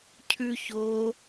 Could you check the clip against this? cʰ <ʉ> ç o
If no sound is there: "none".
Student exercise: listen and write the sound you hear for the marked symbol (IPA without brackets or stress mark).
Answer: ʉ